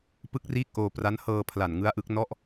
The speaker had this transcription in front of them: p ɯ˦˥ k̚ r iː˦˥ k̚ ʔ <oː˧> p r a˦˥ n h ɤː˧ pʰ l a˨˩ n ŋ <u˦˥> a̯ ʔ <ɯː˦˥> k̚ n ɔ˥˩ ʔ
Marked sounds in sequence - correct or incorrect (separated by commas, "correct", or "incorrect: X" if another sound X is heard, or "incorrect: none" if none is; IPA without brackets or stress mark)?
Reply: correct, incorrect: ɯ˦˥, incorrect: ɯ˦˥